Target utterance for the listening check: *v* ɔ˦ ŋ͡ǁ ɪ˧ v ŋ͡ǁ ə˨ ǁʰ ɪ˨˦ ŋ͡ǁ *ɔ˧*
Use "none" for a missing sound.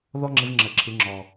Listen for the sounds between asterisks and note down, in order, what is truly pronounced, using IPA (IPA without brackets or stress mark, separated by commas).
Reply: ð, ɔ˨